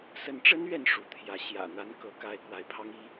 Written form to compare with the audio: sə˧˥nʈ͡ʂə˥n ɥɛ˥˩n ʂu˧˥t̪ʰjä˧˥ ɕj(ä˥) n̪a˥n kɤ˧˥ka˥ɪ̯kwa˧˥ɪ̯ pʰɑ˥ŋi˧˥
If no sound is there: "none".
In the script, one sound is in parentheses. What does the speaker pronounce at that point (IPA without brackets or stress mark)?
ä̰˨˩